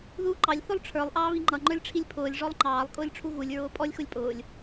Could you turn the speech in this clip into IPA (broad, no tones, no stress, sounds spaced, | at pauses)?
ð uː ǃ ɑ lʲ θ ʊ lˠ ʈ͡ʂʰ ə˞ lˠ ʔ ɑː β i ŋ͡ǃ ʌ ŋ͡ǃ ə˞ lʲ ʈ͡ʂʰ i lʲ pʰ ʊː lʲ ʐ ɔ lˠ ŋ͡ǃ ɑː lˠ kʼ ʊː lʲ ʈ͡ʂʰ u ɣ u lʲ ɹ ʊː pʼ ɔ lʲ x ʊ lʲ pʼ ʊː lʲ